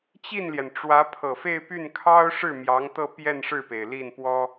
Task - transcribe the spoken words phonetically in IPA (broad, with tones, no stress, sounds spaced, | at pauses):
t͡ɕ i˥˩ n l j ɛ˩ n ʈ͡ʂ w ä˧˥ pʰ ɤ˨˩ f e˥˧ ɪ̯ p y˥˩ n kʰ ɑ˥ ʊ̯ ʂ ɻ̩˥˩ m j ɑ˧˥ ŋ t̪ ɤ˥˧ p j ɛ˥˧ n ʂ ɻ̩˥˩ p e˩ ɪ̯ l i˥˩ n p w ɔ˥